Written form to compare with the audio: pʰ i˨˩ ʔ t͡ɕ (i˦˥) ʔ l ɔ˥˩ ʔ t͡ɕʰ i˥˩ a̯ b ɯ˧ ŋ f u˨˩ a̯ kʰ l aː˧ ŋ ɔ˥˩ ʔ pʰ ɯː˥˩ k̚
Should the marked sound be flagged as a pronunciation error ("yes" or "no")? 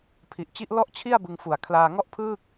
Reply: no